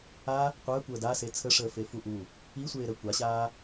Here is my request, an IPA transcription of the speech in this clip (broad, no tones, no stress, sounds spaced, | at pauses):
a | qʷ əː kʷ əː d a s e t͡sʰ ə ʂ əː f e f u ʔ u | i sʷ eː ɾ ə kʷ a ɕ aː